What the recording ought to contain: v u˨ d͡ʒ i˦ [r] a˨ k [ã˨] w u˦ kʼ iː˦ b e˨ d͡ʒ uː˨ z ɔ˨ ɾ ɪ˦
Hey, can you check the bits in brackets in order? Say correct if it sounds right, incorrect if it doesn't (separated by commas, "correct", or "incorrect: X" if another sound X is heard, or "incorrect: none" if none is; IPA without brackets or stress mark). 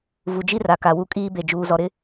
correct, incorrect: a˨